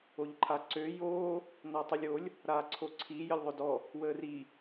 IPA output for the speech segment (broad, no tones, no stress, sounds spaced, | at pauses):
o ʎ ǃʰ a ǀ ø j oː | n ɔ tˤ i lʲ o lʲ | ɾ aː ǀʰ o ǀʰ i j ə lʲ ðˤ o d ɔ | w əː r i